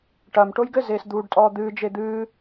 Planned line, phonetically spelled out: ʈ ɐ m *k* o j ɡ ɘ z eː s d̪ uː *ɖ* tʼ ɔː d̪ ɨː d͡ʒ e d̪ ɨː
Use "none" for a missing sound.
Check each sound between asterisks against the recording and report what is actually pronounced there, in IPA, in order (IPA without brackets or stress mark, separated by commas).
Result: ʈ, ɖ